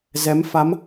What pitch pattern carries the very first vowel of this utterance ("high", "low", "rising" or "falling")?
rising